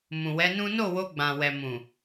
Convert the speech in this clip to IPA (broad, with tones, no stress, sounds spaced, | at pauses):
m ũ˨ w ɛ˨˦ n ũ˦ n o˦˨ w o˧ ɡ͡b ã˨ w ɛ˨ m ũ˨